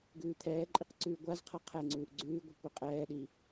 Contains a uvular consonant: yes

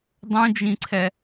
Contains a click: yes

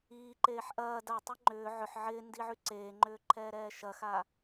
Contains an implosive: no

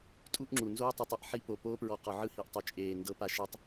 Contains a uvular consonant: yes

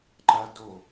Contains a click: yes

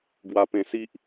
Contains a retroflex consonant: no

